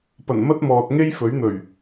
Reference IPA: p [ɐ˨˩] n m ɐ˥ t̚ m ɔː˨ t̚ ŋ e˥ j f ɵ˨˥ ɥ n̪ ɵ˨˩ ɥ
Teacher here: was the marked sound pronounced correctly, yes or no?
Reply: yes